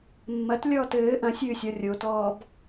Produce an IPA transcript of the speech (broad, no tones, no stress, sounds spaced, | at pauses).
mː ɐ t lʲ ɔː t ɘː ʔ ɐ̃ sʲ ɨː sʲ ɔ rʲ o t ɔː b